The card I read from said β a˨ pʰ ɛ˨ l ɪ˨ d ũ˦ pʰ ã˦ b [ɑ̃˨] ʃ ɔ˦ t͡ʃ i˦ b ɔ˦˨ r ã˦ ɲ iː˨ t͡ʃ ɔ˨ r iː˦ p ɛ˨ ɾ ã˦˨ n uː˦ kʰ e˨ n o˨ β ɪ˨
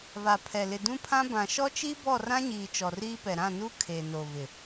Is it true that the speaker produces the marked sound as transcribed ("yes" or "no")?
no